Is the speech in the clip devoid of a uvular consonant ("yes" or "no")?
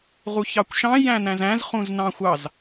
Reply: no